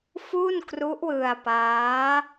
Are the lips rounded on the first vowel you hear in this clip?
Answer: yes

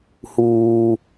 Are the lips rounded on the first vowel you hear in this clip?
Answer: yes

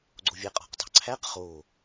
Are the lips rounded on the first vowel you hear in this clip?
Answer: yes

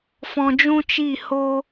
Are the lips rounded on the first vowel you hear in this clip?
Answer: yes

